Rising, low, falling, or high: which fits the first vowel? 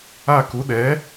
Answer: falling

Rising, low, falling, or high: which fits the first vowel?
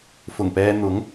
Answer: low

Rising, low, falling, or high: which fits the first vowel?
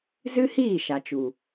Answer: high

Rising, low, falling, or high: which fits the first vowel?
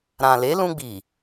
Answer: low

